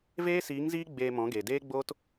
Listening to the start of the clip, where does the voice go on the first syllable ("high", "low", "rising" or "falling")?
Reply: high